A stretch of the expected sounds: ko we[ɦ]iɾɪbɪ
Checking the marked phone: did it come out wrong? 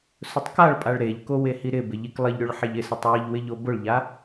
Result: yes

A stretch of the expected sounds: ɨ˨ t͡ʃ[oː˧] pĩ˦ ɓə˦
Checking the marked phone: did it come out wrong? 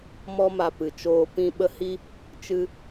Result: no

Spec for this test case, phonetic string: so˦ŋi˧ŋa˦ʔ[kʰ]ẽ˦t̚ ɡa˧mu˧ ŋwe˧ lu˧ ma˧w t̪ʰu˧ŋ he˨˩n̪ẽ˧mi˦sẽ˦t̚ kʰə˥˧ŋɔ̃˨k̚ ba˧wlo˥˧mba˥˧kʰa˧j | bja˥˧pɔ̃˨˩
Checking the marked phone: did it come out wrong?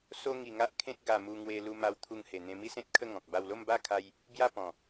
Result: no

